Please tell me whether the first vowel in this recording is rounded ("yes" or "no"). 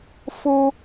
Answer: yes